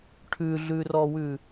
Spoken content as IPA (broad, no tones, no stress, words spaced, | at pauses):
ʈʰʉɮʉrɔwʉ